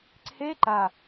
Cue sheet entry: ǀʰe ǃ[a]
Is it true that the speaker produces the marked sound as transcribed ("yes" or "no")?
yes